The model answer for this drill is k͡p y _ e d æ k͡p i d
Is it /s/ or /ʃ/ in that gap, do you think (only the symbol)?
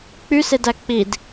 s